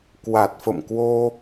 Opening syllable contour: low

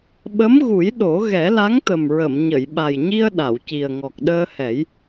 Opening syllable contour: rising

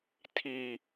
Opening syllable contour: low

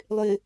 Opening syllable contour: low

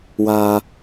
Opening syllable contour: low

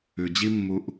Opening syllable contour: low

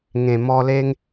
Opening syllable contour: low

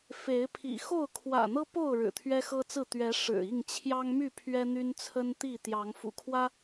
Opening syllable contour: rising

